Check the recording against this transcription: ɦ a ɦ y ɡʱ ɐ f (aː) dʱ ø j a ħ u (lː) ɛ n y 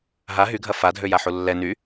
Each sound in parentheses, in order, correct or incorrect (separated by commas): incorrect, correct